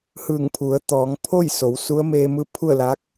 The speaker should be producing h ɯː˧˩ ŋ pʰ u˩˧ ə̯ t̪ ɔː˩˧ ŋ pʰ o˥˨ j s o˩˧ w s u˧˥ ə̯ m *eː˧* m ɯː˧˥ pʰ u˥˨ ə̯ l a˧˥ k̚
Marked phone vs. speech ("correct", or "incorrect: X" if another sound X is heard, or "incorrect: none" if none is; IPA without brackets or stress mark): correct